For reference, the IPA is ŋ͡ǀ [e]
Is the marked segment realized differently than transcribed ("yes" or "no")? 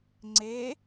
no